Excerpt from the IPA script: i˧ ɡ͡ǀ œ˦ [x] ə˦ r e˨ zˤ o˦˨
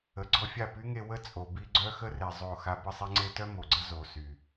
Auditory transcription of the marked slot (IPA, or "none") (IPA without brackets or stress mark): x